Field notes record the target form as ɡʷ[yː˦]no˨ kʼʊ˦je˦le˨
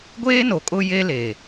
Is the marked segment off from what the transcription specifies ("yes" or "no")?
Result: yes